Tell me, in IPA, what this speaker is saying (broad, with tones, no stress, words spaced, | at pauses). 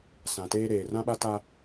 sã˨teː˦ɾeː˨ rã˦ɓa˦ta˦